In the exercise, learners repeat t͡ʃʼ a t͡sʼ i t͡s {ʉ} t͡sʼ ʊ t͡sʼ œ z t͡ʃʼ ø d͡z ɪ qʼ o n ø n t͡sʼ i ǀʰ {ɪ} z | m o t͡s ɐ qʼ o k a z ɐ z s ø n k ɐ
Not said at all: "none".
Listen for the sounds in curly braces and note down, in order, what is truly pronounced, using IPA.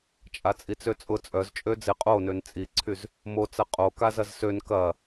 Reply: ø, y

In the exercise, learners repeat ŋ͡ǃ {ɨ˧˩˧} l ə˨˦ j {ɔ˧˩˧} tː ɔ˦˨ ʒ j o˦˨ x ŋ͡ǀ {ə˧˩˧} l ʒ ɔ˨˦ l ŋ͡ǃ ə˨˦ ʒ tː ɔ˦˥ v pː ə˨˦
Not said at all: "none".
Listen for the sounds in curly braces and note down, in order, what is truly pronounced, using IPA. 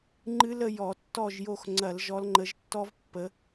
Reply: ɨ˦˥, ɔ˧˩˧, ɐ˧˩˧

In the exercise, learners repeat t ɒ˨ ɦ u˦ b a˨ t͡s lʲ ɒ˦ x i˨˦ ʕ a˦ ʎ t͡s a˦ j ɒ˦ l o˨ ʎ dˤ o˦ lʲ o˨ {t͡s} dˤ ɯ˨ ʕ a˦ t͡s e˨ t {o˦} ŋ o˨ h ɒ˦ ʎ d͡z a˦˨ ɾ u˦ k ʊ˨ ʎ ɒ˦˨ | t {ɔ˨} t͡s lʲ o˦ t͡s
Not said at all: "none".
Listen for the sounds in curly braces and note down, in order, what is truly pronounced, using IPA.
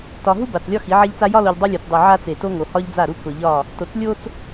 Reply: t͡s, o˦, o˨

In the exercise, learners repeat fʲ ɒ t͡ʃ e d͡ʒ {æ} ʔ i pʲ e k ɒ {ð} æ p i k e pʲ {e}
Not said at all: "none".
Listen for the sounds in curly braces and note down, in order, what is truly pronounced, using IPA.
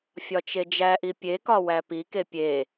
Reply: æ, w, e

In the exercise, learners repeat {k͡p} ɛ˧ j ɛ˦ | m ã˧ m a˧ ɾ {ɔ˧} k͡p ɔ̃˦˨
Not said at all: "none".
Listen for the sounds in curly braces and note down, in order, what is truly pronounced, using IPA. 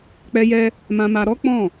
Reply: k͡p, ɔ˦

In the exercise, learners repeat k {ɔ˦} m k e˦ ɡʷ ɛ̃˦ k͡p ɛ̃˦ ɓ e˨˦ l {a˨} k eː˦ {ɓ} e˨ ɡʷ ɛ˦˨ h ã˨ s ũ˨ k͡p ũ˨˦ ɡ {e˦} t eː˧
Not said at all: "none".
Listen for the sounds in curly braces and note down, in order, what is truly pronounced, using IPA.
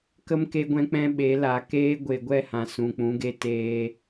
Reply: ə˦, a˨, ɡʷ, e˦

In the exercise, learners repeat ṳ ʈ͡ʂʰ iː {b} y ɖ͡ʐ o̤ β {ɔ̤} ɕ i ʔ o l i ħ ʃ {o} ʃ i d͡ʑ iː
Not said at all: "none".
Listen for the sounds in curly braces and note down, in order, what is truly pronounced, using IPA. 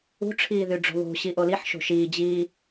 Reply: ð, o̤, o̤

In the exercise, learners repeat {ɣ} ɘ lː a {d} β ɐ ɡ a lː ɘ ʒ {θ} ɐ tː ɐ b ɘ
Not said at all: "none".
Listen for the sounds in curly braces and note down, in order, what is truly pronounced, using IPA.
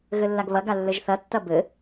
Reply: ɣ, ɡ, θ

